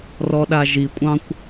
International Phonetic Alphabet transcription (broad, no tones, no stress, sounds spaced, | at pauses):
r ɔ ɗ a ʒ i kʷʼ ɑ̃ kʷ